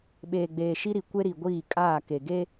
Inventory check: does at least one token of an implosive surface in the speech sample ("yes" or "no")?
yes